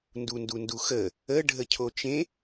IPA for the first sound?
n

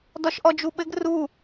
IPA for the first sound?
d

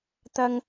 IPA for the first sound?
t̪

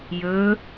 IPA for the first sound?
j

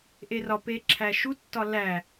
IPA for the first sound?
ʔ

